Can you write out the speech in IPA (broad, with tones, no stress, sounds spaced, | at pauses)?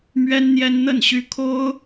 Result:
m ɥ ɛ˥ n n̪ j ɛ˥ n n̪ ə˥˩ n ɕ y˥ kʰ o˥ ʊ̯